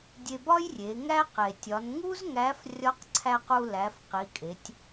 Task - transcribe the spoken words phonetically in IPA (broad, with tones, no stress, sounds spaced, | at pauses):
dʲ e˧ b ɒ˥ j rʲ e˩˧ ŋ æ˥ q e˩ tʲ ɒ˩˧ n ŋ u˥ z ŋ æ˧˥ f rʲ ɒ˧˥ q ǀʰ æ˧ q u˧ l æ˩˧ f q i˩˧ kʼ e˩˧ tʲ